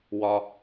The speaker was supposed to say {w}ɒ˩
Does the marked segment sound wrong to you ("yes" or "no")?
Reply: no